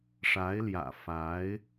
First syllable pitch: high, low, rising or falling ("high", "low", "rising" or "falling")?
rising